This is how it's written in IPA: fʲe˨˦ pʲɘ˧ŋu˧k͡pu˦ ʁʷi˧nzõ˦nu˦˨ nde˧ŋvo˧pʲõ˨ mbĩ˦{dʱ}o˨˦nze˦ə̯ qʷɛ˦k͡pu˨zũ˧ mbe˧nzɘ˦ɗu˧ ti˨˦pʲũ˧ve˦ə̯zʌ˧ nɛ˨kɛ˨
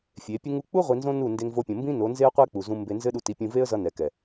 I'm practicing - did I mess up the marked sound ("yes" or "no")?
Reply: yes